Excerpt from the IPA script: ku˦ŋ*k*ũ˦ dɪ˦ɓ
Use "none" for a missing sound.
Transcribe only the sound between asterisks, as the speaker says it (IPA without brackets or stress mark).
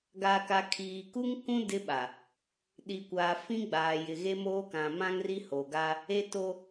k